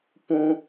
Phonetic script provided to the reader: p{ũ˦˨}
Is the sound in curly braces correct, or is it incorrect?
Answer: incorrect